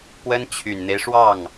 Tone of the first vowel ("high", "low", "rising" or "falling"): high